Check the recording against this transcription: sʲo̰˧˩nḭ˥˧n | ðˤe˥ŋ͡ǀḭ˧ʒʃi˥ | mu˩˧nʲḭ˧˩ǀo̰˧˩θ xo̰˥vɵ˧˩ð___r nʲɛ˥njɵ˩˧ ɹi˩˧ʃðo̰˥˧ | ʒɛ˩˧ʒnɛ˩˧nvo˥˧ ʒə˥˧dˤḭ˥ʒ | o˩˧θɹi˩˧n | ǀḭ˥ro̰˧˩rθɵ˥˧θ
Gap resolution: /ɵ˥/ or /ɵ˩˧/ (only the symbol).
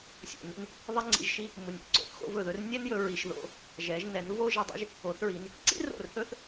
ɵ˥